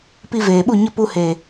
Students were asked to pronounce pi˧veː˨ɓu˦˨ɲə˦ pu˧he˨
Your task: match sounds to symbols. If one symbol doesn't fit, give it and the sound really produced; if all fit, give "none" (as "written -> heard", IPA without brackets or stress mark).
none